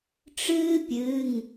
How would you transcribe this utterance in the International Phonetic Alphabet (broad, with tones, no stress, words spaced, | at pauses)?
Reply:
ʈ͡ʂɨː˥pʲɨ˩˧˩ŋ